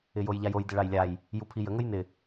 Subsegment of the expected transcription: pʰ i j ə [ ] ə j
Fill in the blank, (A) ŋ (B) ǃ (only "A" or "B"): A